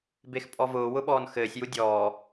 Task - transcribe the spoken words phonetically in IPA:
bexpʼɔvʊː wʊɓɔːnxɘːsʲ judʲɔː

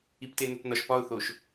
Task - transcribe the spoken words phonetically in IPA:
iptenotnɒʃ pɒʊ̯θoʃ

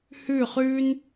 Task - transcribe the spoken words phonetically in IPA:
hʉ˥˩χʉː˥n

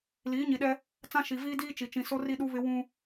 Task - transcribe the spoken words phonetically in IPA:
liː˨˦ɲi˨ɗɛ˦ | t͡sã˦ ʃi˨viː˦ diː˦t͡ʃi˨ t͡ʃĩ˨so˦ ri˦ɗu˦βɪ˦ wũ˦

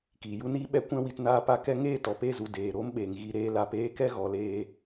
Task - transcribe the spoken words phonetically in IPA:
kiː˨ju˦niː˦ ɓɛ˦kʷɛ̃˦ wi˧tnaː˦pa˦ kɛ˧ŋeː˦˨ tɔ˨pe˦˨zu˨ deː˨ɾo˦mɓeː˨ŋɣi˧ ɾeː˧la˧p eː˦kɛ˦ɣɔ˨leː˧

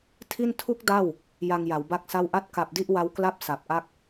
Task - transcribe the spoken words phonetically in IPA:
tʰi˥˩n tʰu˦˥k̚ da˥˩w | ja˧ŋja˩˦wba˥˩k̚sa˥˩w ʔa˥˩t̚ka˨˩p̚di˥˩ʔ wa˦˥wkla˥˩p̚ sa˨˩p̚ʔa˥˩k̚

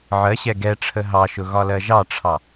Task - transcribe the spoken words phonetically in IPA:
ʕɜɕɛ ɡɛ ʈ͡ʂʰəɦɑʃʊ ɣɒlɜʒɑʈ͡ʂʰɑ

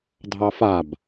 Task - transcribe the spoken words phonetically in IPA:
dʱɑfab

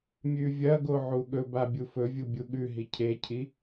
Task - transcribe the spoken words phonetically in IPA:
mʲʉvʲɐɡo ʕuɠɵba bʲufɵvʲu bʲuɠʉɦi cʰecʰi

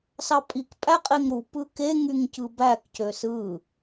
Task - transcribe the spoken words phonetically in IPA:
sɑpʼik pʼæqʼeŋɾu pɯke ŋyŋcɯbæk cøsɯ

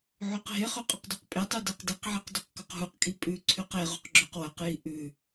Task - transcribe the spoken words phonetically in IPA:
ʕʉqɦeχɵ qʼɵqdʉqpʼetˤʉ deqdiqʕiq dɵqkɵqɦuqkʼi pʼʉ ǀʰʉqeʁuq ɡ͡ǁɵqwɐqji ʔʉ

